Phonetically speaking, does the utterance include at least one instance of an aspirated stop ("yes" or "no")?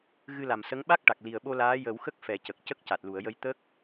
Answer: no